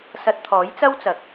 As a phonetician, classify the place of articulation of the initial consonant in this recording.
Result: alveolar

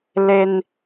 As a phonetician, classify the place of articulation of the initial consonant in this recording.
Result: alveolar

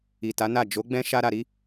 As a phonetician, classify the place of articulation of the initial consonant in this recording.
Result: alveolar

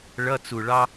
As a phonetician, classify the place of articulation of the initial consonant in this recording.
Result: retroflex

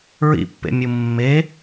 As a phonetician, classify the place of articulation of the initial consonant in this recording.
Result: alveolar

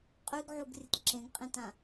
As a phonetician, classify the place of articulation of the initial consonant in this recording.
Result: uvular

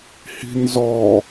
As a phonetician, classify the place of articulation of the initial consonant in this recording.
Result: glottal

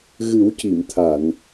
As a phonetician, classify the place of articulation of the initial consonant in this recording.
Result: velar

